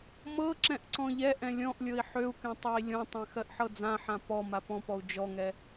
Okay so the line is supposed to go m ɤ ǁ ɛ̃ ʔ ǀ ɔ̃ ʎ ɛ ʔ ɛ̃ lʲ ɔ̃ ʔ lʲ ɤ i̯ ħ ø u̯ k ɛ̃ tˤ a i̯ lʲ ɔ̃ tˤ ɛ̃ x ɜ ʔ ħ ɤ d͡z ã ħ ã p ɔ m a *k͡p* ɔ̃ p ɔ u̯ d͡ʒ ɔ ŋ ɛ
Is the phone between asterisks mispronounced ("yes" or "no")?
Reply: yes